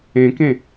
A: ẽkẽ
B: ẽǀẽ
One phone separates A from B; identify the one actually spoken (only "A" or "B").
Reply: A